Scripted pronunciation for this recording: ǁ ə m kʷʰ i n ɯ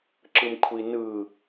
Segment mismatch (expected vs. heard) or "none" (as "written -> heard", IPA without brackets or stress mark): ə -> ɯ